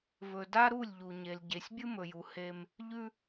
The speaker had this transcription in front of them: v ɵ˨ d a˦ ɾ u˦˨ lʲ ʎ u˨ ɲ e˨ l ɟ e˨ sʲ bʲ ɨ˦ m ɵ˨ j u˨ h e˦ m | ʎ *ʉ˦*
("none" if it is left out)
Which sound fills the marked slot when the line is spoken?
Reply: ʉ˦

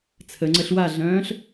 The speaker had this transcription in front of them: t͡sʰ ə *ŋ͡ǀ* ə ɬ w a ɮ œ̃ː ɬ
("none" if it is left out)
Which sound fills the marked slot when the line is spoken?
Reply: ŋ͡ǀ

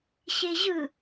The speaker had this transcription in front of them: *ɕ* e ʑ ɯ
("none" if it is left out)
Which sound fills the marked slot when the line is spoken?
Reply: ɕ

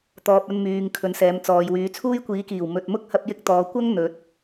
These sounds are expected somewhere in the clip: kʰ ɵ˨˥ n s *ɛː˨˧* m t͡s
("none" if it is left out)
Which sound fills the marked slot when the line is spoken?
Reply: ɛː˨˧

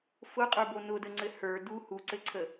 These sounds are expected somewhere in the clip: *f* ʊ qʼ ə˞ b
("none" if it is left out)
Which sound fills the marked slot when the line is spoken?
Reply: f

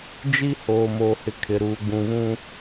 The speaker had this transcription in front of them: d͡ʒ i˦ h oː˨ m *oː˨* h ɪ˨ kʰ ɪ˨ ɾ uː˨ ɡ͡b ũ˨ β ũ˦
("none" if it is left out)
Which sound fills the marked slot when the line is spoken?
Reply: oː˨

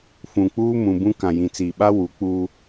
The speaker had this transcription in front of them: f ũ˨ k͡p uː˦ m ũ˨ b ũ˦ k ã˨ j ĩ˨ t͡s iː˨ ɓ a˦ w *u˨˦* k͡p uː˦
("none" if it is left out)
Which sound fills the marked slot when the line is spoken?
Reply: u˨˦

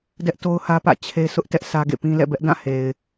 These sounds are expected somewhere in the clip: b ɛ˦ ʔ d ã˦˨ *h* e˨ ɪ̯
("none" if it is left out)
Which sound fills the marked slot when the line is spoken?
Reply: h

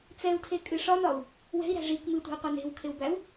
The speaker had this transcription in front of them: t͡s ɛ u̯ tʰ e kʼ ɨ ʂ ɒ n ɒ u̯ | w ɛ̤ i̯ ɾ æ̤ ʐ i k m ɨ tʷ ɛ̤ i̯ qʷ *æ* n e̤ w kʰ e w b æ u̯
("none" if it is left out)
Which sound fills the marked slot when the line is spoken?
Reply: æ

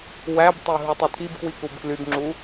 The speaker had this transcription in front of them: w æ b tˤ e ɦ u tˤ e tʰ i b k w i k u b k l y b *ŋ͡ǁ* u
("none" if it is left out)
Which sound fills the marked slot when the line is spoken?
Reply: ŋ͡ǁ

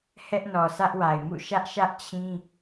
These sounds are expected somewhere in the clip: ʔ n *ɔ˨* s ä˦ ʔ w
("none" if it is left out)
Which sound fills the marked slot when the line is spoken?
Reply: ɔ˨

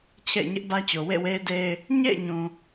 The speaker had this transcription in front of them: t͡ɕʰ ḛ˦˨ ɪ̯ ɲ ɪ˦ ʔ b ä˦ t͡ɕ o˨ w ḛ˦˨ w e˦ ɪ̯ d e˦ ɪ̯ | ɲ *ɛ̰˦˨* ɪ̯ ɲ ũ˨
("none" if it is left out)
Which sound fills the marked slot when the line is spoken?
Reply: ḛ˦˨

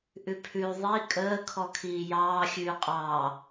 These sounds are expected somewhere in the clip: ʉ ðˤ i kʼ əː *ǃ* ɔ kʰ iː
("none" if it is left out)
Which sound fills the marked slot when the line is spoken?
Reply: kʰ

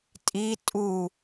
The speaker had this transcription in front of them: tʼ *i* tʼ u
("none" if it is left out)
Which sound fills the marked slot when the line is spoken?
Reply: i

